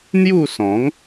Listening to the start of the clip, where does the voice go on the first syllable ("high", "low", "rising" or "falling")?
falling